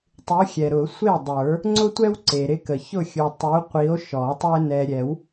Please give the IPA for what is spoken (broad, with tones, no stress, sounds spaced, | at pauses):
tˤ u˨˥ xʲ ɛ˨ ɾ ʊ˨˩˦ sʷ e˥˩ dˤ ə˞˨˩˦ | ŋ͡ǀ ʊ˦ tʷ ɛ˦ w ǀ e˨ ɾ ɪ˦ k ə˨ ç ʊ˥˩ xʲ u˨ tˤ u˨˥ qʷ i˨˥ o̯ ʃ ɔ˨˩˦ tˤ ʊ˦ e̯ n ɛ˨ ɾʲ ɛ˨˩˦ w